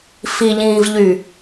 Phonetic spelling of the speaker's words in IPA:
f i ʎ ĩː v ʎ y

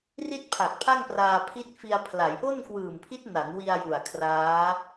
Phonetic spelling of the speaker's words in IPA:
r i˥˩ t̚ pʰ a˨˩ k̚ pʰ a˥˩ ŋ p r aː˧ pʰ i˦˥ t̚ f i˧ a̯ pʰ l a˩˦ j ʔ o˥˩ n k w ɯː˨˩ m pʰ i˦˥ t̚ n a˩˦ n w i˧ a̯ j u˨˩ a̯ kʰ r aː˦˥

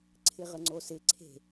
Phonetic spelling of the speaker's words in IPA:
ǀʰ ɪ ʁ ə ŋ͡ǀ o s ɪ ǀʰ e̤

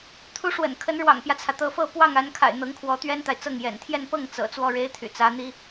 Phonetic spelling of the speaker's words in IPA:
t̪ʰ u˧˥ ʂ w ə̰˨˩ n kʰ ə˧˥ n ɻ w ɑ̰˨˩ ŋ p j ä˦ t͡sʰ ä˩ t̪ ɤ˧˥ f ɤ˥˧ p w ɑ˥˩ ŋ a˧˥ n kʰ a̰˨˩ ɪ̯ n̪ ɤ˧˥ ŋ kʰ w ɔ˧˥ t̪ ɥ ɛ˥ n t̪ a˨ ɪ̯ t͡s ɤ˥˩ ŋ j ɛ̰˨˩ n t̪ʰ j ɛ˥˧ n p ɤ˥˩ ŋ t͡s ɤ̰˨˩ t͡s w ɔ˥˩ ɻ e˥ ɪ̯ t̪ʰ y̰˨˩ t͡s ä˧˥ n̪ i˥

